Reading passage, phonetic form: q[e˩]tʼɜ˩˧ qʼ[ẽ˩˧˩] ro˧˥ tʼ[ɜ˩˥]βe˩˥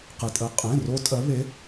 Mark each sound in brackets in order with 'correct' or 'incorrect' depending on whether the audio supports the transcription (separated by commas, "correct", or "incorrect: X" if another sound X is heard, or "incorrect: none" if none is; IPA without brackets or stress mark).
correct, correct, correct